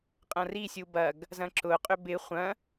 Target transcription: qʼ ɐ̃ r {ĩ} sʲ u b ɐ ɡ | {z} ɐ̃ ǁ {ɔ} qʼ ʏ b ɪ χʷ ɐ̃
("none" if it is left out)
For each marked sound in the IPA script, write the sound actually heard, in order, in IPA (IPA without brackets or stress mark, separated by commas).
i, z, ʊ